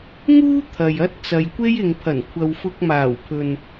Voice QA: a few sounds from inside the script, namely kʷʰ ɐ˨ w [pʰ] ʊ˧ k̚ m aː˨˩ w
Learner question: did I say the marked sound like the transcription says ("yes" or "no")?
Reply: no